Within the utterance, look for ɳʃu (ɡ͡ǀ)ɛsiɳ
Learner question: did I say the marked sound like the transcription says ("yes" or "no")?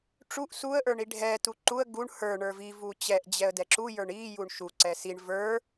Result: no